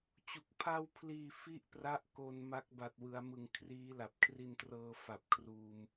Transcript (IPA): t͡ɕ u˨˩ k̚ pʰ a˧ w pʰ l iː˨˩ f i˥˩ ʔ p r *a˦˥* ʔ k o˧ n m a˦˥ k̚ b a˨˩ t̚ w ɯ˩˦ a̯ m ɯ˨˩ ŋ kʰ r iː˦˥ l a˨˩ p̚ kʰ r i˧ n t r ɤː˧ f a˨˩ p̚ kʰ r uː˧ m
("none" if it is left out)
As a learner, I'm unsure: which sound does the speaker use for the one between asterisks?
a˦˥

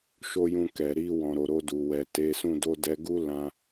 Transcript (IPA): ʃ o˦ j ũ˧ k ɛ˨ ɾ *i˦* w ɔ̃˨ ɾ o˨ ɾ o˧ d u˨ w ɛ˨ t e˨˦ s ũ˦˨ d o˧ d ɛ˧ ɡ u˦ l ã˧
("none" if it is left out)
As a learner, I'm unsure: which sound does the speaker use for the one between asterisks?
i˧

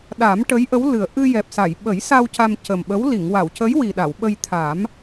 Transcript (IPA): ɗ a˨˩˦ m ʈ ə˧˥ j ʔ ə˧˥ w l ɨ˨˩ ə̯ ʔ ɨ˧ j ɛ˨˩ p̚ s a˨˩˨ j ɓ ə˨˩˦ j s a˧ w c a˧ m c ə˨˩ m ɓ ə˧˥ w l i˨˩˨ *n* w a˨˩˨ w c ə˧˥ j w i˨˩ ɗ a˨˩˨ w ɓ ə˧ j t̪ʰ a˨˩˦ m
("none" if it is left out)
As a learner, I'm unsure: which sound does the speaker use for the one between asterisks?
ŋ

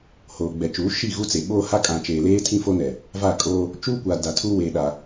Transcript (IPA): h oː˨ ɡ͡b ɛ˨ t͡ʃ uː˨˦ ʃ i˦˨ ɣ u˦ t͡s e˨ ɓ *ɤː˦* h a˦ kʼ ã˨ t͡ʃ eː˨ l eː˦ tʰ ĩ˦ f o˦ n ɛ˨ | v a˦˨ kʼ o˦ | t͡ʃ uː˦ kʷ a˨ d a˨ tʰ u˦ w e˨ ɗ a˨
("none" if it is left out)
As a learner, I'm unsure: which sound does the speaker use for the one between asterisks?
oː˦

